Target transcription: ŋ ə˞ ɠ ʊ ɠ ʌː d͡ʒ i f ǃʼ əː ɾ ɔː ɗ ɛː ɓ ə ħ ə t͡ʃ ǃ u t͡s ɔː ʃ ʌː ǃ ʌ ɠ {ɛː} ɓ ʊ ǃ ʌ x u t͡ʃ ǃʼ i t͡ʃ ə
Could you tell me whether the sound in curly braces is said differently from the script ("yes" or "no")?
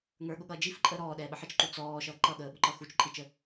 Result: yes